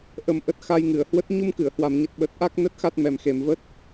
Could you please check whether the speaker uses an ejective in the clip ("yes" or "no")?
no